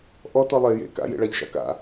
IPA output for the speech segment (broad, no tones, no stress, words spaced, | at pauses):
ʔɔtɔ lˠe jḛ ka̰jḛɭaʎʃa̰ ka̰